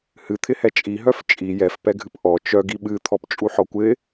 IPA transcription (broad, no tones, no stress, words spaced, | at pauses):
hɨt̪ʰɪhɛ t͡ʃʼiɦœf t͡ʃʼi jɛfpɛɡʱɨp ʔɔ t͡ʃœɡ iɓɨ t̪ʰɔpt͡ʃʼuħɔkʷɪ